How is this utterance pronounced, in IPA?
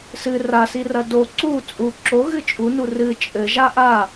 s ɨ r a s i r ɐ d o ǀ u t͡sʼ u ǁ o ɣ ɨ t͡ʃʼ u n u r ɨ t͡ʃʼ ɘ ʒ a ʔ a

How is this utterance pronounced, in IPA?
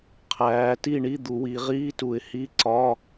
qʰ æː˩˧ t i˥˩ ɳ i˧˥˧ d̪ u˩˧ w i˩˧ ʁ iː˧˥˧ t u˧˩˧ ɪ̯ h i˧˥˧ ǀ ɒ˧˥˧

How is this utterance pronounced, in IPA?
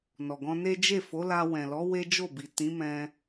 n ɔ˨ ɡ ɔ̃˧ n e˦ d͡ʒ e˦˨ f o˨˦ l a˧ w ɛ̃˨ l ɔ˨˦ w e˦ d͡ʒ o˦˨ b i˨ t ĩ˨˦ m ɛ̃˧

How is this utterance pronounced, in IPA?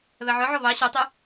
β ɛ ʕ œ ʕ ɔ β ɑ ɕ œ tˤ o

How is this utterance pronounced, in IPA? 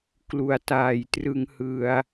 k l u˩˦ a̯ t aː˨˩ j t r ɯ˧ ŋ h ɯ˧ a̯

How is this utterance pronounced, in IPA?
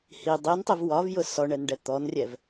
h i dˤ i n tˤ i v w ɒ v j ʊ s ɔ ɳ ɛ n ɖ ɛ t̪ ɔ n rʲ ɛ v

